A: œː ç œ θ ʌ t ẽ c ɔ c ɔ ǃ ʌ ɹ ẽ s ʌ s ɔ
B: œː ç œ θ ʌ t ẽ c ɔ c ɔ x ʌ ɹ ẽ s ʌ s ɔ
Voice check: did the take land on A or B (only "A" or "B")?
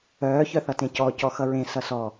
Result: B